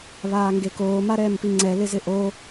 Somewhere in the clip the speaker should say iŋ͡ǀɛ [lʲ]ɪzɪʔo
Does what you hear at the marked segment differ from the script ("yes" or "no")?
yes